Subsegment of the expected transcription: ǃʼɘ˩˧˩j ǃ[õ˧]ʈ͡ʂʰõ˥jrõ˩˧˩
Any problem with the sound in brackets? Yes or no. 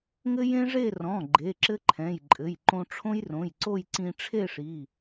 no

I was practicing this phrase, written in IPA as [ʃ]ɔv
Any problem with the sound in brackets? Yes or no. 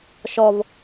no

